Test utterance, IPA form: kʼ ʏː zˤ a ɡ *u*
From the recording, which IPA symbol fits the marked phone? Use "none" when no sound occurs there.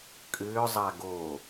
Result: o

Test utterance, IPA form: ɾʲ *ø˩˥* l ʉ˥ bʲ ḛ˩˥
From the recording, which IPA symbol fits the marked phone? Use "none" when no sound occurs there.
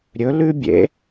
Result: ɵ˩˥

